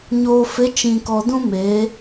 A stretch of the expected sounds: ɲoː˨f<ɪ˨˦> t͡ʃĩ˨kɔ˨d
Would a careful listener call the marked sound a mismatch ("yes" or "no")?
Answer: no